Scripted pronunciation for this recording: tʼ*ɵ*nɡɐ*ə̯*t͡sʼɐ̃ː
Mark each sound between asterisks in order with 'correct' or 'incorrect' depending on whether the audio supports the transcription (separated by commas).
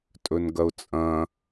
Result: correct, incorrect